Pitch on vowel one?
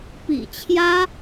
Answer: low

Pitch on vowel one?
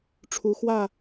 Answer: rising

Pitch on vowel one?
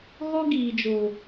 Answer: high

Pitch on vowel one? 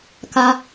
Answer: high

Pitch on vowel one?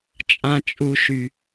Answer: high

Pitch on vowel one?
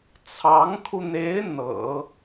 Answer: rising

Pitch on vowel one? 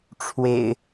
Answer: low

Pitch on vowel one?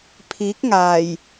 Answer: rising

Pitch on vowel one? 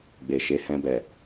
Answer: low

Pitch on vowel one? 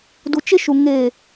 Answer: low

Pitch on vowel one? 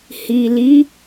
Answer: low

